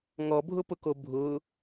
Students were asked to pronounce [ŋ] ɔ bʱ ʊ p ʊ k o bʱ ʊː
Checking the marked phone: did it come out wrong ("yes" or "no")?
no